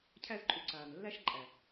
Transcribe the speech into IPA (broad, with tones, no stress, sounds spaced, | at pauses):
cʰ æ˦ z ǃʼ u˧ ǀ aː˨ n lː æ˦ ʃ ǃʼ æ˨